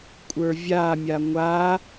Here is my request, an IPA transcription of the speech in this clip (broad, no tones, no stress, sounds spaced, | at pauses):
kʷʼ ə˞ vʲ a mʲ a ŋʷ a